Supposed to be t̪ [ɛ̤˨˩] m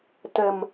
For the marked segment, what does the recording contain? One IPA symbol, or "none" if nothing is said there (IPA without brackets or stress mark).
ə̤˨˩